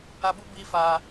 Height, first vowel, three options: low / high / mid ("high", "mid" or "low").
low